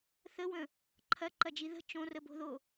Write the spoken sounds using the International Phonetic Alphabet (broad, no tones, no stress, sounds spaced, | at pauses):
θ ə w ə̃ | ǃʰ ɐ ǃ ɐ d͡ʒ i ð ə̤ t͡ʃ õ r ə b o̤ ð o